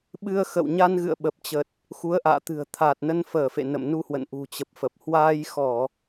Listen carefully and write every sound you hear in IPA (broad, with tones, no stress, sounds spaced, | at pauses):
ɓ ɨ˧ ə̯ x ə̰˧˨ w ɲ a˧ n ɣ ɨ̰˧˨ ə̯ ɓ ə˨˩ p̚ t͡ɕ ə˨˩ t̚ | x u˨˦ ə̯ ʔ a̰ː˧˨ t̪ ɨ̤˨˩ ə̯ t̪ʰ a˨˩ t̚ n ə˧ n f əː˧˩ f ḛ˧˨ n ə̰˧˨ m n u˧ h w ə̰˧˨ n ʔ ṳ˨˩ t͡ɕ ə˨˩ p̚ f ə˨˩ p̚ h w aː˧ j x ɔ˧˩˨